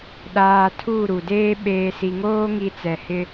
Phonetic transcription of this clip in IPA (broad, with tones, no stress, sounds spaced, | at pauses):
ɗ aː˨ tʰ uː˦˨ ɾ u˨ d eː˦ ɓ eː˨ s i˨ ŋ oː˦ ŋ i˨ t͡s ɛ˨ h ɪ˦